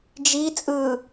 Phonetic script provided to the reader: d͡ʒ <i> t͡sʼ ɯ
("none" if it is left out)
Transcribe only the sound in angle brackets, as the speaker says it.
i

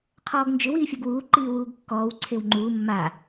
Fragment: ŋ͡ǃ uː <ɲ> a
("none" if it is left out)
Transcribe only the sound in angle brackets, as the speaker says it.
mː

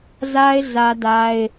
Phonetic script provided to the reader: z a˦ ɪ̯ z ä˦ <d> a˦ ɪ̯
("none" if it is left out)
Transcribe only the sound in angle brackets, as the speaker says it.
d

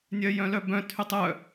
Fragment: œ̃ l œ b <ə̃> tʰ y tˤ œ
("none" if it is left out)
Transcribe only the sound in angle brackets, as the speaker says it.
œ̃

